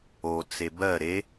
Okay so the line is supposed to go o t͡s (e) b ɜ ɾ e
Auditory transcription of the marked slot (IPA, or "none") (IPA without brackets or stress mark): e